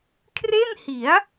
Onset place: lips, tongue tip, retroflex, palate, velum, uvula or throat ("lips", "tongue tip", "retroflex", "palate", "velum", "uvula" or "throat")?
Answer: velum